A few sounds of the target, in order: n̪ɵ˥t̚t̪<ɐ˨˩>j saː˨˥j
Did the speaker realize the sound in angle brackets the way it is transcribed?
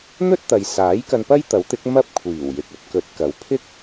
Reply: no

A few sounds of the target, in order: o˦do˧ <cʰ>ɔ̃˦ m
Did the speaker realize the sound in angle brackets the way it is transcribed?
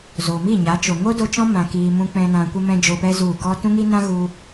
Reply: no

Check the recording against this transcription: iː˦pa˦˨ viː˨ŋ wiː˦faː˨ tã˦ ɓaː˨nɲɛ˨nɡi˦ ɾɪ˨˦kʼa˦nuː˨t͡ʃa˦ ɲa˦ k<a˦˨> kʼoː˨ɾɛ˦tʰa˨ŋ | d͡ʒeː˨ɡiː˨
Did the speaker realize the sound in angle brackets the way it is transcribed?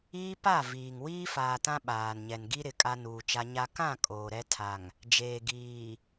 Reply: no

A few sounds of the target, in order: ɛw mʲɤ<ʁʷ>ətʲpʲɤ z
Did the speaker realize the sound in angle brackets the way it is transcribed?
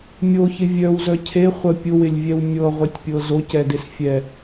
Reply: yes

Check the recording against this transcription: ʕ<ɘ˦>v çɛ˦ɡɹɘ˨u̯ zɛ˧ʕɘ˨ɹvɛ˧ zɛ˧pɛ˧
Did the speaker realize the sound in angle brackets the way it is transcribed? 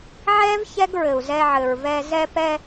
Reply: no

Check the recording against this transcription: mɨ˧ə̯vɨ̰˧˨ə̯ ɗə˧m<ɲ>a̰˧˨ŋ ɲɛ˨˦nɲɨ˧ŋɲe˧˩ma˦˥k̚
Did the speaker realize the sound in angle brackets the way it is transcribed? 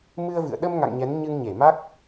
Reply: no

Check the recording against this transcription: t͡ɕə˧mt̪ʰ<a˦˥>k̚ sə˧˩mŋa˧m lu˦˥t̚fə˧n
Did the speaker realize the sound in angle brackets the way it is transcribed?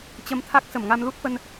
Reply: yes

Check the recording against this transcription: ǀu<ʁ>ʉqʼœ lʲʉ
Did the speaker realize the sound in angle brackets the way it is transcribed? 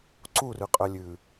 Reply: no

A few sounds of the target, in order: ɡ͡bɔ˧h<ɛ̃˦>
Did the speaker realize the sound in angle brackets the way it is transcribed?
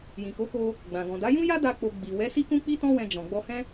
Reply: yes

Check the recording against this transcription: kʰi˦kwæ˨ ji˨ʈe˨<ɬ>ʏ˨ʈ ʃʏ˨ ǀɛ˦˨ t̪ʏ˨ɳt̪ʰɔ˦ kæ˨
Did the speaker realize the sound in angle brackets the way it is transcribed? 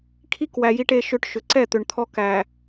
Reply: no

